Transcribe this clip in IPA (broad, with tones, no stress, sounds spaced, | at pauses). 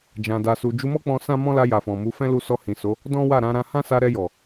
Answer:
d͡ʒ ã˨ d a˨ s u˨ d͡ʒ u˧ m ɔ˦ k͡p ɔ̃˧ s ã˦ m ɔ̃˦ l a˧ j a˨ f ɔ̃˨ m u˨˦ f ɛ̃˦ l u˦ s ɔ˧ h ĩ˨ s o˨˦ | d ɔ̃˦ w a˦˨ ɾ ã˨˦ ɾ ã˦ h ã˦ s a˧ ɾ ɛ˧ j ɔ˨